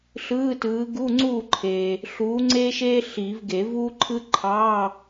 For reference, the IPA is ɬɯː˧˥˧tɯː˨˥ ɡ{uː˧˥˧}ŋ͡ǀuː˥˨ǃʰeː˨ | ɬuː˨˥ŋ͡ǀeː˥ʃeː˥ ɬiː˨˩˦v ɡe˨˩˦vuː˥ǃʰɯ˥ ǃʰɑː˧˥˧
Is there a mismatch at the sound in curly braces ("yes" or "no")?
yes